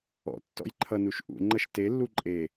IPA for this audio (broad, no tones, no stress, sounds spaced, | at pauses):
ɔ̰ tː ɔ̰ j ǃʰ ʌ n u ʃ ʔ ṵ ŋ͡ǃ ʌ ʃ t e lː u ǃʼ e